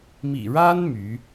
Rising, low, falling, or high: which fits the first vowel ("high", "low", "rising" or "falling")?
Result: low